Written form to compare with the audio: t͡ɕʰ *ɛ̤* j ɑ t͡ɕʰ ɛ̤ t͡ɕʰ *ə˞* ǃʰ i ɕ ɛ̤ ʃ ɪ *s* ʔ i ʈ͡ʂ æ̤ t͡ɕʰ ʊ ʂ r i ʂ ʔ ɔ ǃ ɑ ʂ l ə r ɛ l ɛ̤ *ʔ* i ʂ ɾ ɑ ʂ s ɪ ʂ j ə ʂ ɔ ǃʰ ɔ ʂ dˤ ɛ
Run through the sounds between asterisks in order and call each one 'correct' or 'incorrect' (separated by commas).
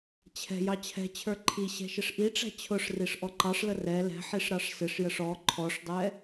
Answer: correct, correct, incorrect, incorrect